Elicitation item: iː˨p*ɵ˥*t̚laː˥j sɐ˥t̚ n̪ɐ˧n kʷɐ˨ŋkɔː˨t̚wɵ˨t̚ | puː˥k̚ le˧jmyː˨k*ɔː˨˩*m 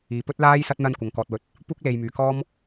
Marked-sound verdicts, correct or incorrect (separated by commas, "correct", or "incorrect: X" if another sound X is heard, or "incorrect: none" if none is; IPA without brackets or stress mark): correct, incorrect: ɔː˥